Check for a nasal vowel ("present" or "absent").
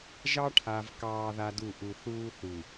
absent